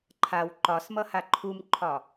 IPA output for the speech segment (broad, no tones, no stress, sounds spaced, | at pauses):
ǃʰ a w ǃ ɒ s m ʌ h a ǃʰ u m ǃʰ ɒ